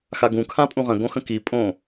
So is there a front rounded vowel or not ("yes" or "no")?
no